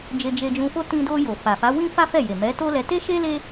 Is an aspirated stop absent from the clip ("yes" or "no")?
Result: yes